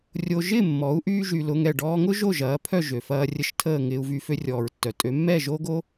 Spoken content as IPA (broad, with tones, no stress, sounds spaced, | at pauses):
rʲ o˧ ʒ ɪː˥˩ mː ɔ˩˥ u̯ ʔ yː˧ ʒ y˩ l ʊ˧ ŋ ɛ˥˩ ɖ ɔː˧ ŋ ʊ˥ ʒ o˥˩ ʒ ɐː˩˥ pʰ œ˥˩ ʒ ø˩ f ɐː˧ rʲ ə˥˩ ʃ tʰ əː˥˩ ŋ ɪː˧ u̯ v y˧ f ø˧ rʲ ɔː˩ ɹ tː œ˩ tʼ ø˩˥ mː ɛ˥˩ ʒ o˥ ɡ o˥